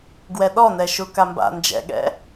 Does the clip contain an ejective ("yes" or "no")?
no